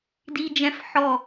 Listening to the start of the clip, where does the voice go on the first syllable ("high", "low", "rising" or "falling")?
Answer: high